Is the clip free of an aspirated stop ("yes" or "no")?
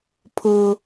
no